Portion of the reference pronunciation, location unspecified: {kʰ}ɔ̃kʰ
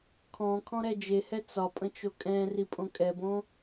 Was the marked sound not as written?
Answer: no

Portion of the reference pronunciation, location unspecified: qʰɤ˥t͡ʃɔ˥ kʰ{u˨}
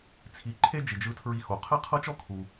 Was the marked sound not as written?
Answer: no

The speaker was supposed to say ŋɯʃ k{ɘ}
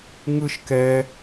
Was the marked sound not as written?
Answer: yes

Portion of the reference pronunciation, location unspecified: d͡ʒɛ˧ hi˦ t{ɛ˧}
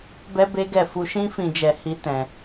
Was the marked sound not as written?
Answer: yes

